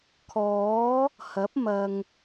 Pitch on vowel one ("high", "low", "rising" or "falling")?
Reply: rising